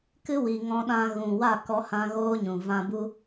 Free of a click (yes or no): yes